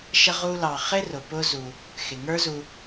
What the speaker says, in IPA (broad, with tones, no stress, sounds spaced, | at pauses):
ʃ ə˦ ʁ u˦ l ɑ˨ χ ɪ˥ r ʊ˩ p ʊ˦ z u˨ | x ɪ˩ ŋ ə˞˦ z u˨